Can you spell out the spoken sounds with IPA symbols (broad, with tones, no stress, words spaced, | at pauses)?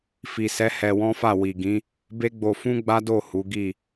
fi˨sɛ˨˦ hɛ˧wɔ̃˦fa˦˨ wi˨ɡĩ˨˦ | be˦ɡ͡bo˧ fũ˦ɡ͡ba˦do˦˨ hu˨˦ɡi˦˨